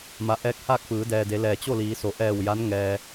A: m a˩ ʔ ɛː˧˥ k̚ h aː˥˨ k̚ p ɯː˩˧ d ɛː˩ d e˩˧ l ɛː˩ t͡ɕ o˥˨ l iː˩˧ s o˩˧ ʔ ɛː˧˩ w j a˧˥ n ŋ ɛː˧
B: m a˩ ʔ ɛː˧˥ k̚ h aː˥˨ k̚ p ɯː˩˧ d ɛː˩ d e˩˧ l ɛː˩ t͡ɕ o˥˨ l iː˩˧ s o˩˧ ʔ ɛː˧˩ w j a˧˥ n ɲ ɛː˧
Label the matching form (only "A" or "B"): A